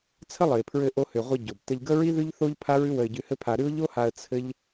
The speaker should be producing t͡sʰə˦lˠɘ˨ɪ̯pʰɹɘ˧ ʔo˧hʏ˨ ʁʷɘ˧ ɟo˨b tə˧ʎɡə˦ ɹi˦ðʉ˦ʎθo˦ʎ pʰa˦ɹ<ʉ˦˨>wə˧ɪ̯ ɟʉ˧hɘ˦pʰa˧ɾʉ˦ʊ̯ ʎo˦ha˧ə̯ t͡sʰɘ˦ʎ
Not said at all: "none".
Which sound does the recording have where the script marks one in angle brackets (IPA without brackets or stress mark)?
ʉ˦